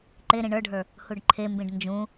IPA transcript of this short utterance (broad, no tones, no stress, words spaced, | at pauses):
ǃe ɾĩɳə˞ɖʱə˞ | huɖǃʰembĩɖ nd͡ʒũ